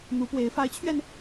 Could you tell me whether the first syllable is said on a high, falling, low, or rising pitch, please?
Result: rising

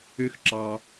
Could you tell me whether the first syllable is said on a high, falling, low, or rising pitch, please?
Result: high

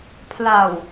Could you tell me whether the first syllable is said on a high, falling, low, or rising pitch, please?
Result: low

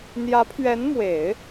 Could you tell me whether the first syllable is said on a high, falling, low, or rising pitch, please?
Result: rising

